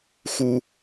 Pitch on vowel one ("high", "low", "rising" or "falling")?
high